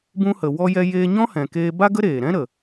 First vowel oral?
no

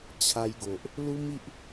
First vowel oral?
yes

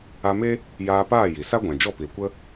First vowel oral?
yes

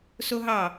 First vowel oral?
yes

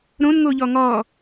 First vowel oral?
no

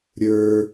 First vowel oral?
yes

